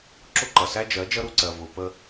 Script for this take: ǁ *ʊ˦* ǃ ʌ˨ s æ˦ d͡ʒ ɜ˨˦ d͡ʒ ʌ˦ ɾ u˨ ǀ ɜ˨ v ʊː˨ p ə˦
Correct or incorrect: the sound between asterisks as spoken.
correct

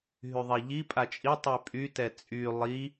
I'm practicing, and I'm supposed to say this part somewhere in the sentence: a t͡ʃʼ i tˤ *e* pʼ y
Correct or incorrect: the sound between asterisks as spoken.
incorrect: y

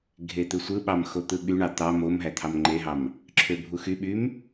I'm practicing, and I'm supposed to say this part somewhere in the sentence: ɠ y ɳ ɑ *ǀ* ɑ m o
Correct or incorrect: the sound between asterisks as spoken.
incorrect: t̪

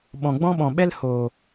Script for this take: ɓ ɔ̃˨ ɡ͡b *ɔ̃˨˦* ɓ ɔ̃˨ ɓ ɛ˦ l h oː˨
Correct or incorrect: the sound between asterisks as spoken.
incorrect: ɔ̃˦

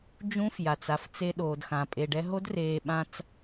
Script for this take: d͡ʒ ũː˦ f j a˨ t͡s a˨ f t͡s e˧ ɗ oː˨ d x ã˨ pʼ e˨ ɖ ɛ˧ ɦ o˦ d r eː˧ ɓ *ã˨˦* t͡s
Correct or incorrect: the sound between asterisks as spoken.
incorrect: ã˦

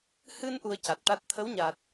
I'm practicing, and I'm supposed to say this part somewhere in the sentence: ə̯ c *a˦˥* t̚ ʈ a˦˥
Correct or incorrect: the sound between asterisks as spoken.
incorrect: a˨˩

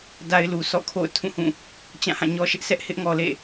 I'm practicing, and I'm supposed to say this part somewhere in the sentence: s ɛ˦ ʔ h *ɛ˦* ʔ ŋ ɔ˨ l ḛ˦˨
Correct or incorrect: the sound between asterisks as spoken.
incorrect: ɪ˦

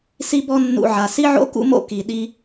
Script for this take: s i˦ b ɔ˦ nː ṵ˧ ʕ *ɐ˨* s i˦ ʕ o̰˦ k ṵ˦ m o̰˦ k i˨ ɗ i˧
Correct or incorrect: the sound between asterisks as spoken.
incorrect: a˨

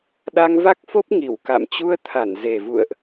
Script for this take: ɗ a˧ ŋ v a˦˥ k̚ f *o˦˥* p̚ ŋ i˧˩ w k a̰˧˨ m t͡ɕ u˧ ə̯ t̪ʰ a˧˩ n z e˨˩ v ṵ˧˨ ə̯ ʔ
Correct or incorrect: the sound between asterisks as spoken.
correct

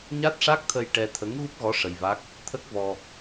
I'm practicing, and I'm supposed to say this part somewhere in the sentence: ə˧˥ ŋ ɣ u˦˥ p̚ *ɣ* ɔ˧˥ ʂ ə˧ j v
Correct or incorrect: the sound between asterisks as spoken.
correct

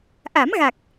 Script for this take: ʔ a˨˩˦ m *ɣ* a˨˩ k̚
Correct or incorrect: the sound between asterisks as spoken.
correct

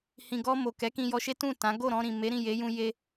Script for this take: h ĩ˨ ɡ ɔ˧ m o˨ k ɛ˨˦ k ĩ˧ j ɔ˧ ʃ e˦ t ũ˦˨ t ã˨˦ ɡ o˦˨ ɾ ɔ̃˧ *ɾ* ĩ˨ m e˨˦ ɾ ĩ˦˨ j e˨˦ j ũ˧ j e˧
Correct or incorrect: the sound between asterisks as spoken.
correct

